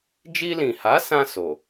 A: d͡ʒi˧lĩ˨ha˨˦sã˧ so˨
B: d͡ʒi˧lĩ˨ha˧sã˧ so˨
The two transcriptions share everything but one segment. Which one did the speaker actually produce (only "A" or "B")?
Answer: A